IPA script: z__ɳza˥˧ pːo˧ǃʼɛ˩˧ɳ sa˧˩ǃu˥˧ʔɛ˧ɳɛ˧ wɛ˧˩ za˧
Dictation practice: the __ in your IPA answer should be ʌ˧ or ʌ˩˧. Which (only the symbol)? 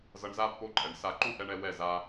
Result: ʌ˧